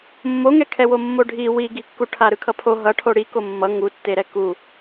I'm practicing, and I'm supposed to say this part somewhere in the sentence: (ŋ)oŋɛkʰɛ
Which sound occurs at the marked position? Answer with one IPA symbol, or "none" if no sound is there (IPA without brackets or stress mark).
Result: mː